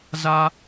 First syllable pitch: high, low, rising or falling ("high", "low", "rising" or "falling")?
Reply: high